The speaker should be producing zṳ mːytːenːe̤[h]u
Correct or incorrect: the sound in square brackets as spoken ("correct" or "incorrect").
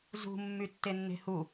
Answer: correct